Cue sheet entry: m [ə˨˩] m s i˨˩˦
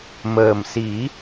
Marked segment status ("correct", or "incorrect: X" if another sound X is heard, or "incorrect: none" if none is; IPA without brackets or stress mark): incorrect: əː˨˩